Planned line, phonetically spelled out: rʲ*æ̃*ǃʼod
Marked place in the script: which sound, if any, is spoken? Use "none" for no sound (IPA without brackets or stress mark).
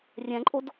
æ̃